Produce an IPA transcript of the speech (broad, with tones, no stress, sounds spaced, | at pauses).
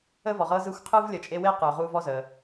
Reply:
ə˥ v ɔ˩ ʁ ɤ˦ z ɯ˦ xʷ qʰ ɯ˥ v lʲ ə˨ t͡ʃʼ e˦ w e˥ q ɯ˩ ʊ̯ ʁ u˦ v ɔ˥ z ə˩